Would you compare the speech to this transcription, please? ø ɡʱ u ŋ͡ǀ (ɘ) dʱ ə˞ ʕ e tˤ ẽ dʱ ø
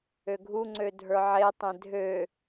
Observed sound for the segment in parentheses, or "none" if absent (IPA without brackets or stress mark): ø